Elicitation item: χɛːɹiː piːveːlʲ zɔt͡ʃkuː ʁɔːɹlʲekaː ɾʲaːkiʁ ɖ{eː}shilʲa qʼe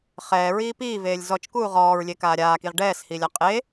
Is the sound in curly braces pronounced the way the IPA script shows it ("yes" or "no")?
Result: no